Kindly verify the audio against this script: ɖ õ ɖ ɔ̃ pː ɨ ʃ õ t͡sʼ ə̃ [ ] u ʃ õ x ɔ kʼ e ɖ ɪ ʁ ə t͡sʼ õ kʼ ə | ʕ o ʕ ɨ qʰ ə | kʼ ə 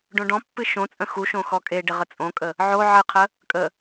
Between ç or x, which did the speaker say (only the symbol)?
x